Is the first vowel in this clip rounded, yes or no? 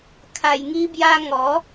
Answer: no